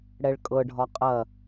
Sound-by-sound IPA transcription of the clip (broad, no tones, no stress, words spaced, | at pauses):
ɽɛɭkʼɤɖʱɒ qʼɐ